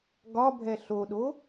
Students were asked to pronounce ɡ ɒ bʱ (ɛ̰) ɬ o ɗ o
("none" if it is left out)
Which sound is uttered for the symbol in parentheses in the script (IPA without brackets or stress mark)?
ɛ